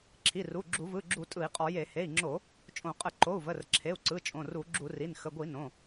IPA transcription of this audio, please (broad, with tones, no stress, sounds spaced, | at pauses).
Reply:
ǁʰ i˩˧˩ r u˩˧˩ ɡ͡ǁ u˧˩˧ v ɯ˩˧˩ ɡ͡ǁ u˧˩˧ tʼ ɯ˧˩˧ i̯ qʼ ɔ˧˩˧ j e˧˩˧ h e˩˧˩ i̯ ŋ͡ǁ o˧˩˧ | t͡ʃʼ õ˧˩˧ qʼ ə˧˩˧ ǃ o˩˧˩ u̯ v ə˩˧˩ r ǁʰ e˩˧˩ u̯ ǀ ɯ˩˧˩ t͡ʃʼ õ˩˧˩ r u˧˩˧ ɡ͡ǁ u˧˩˧ r i˩˧˩ n x ə˩˧˩ ɡʷ i˧˩˧ n õ˩˧˩